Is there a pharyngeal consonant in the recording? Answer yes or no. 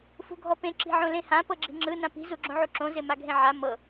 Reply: yes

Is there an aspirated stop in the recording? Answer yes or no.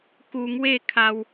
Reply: yes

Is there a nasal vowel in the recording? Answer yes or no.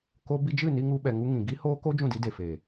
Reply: yes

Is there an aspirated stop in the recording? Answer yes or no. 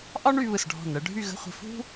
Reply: no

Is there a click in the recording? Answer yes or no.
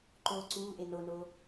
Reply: yes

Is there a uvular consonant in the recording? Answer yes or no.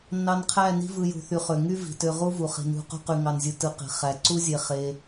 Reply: yes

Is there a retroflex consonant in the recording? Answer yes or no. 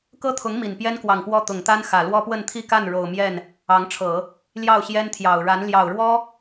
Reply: yes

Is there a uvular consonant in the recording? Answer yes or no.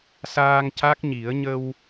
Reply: no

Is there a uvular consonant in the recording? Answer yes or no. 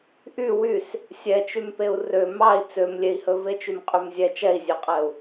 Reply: yes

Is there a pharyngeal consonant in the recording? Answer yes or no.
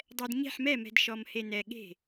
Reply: yes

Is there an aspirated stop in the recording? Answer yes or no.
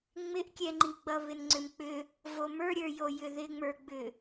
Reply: no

